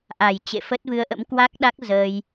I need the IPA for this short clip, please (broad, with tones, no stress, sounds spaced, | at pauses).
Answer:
ʔ a˨˩ j t͡ɕ ḛ˧˨ f ə˦˥ t̚ v ɨ˧ ə̯ ʔ ə̰˧˥ m k w a˦˥ k̚ ɗ a˦˥ k̚ z əː˧ j